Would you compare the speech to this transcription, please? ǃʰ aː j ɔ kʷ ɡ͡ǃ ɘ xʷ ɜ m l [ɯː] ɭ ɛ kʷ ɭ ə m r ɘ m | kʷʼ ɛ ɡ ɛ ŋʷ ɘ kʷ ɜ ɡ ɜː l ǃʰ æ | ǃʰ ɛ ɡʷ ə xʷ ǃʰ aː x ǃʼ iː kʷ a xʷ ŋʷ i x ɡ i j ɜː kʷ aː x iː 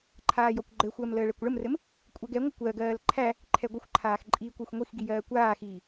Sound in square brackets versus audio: incorrect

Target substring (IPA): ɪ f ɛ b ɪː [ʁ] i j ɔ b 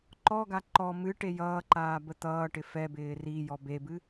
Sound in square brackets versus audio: incorrect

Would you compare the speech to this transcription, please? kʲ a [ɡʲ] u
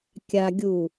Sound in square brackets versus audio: correct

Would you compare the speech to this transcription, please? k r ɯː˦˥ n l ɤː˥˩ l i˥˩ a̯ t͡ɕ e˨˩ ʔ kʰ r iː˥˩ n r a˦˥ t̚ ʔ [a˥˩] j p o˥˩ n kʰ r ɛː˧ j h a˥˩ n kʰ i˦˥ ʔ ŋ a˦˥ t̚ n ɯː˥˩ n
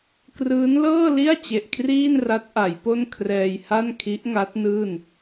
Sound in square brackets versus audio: incorrect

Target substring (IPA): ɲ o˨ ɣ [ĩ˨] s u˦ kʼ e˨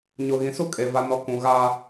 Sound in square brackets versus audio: correct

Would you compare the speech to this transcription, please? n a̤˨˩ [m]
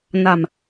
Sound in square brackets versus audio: correct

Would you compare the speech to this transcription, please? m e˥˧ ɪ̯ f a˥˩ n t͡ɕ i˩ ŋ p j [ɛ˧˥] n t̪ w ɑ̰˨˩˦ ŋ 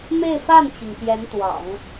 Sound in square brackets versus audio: correct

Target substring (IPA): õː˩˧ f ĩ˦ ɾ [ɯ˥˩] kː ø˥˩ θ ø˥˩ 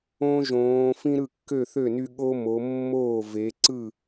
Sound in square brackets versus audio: correct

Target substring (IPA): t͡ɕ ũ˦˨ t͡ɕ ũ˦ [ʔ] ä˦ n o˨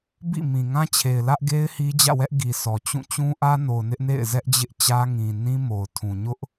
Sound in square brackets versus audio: correct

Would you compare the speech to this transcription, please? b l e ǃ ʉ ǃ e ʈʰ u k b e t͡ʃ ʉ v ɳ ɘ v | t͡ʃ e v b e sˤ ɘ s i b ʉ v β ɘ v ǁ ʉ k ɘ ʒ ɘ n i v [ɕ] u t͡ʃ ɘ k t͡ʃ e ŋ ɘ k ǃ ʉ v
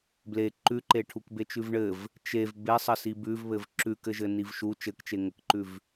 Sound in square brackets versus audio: incorrect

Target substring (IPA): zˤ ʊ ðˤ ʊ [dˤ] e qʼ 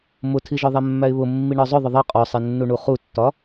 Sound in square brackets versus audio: incorrect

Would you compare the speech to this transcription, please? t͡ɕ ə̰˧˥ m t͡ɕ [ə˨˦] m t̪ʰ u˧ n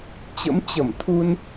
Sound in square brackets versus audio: incorrect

